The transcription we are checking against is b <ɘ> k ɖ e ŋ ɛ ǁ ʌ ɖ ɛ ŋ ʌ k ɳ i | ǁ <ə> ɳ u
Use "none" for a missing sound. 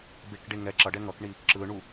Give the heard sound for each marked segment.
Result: e, ɯ

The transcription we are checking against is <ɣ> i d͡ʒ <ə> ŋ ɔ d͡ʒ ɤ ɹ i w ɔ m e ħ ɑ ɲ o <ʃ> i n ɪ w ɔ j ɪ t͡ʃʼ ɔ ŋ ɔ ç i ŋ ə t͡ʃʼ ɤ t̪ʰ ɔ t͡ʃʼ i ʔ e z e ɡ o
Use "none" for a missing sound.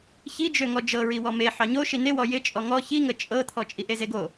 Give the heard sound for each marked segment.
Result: ç, ø, ʃ

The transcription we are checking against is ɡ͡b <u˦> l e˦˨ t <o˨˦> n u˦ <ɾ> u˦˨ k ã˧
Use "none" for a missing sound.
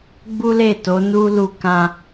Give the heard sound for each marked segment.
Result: u˦, o˨˦, l

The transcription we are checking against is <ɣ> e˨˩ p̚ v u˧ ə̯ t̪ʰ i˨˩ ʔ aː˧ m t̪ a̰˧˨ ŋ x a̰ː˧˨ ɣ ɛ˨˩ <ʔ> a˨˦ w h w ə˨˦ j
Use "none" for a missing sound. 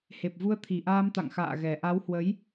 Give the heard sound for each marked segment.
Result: h, ʔ

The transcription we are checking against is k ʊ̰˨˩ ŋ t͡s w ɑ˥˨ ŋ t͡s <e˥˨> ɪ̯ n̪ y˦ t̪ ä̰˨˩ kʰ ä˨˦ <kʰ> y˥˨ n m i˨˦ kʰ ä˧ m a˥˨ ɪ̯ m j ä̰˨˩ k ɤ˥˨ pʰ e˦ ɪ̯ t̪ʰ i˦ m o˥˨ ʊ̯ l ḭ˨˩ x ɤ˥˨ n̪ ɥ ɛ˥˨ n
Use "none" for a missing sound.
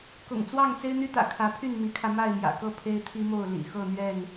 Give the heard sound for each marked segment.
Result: e˦, pʰ

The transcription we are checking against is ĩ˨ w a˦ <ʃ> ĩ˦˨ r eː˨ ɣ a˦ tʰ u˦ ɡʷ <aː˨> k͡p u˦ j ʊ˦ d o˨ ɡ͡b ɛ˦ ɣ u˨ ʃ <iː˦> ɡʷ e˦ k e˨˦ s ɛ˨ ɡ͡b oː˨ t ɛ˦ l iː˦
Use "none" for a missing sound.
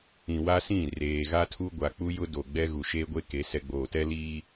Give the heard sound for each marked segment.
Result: s, a˨, eː˦

